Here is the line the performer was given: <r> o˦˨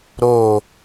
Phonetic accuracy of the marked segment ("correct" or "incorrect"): incorrect